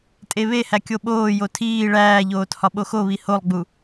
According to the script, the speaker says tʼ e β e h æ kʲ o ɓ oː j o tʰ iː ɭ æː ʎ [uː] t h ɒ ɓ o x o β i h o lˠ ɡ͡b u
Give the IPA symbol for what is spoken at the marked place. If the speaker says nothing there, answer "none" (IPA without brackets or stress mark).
oː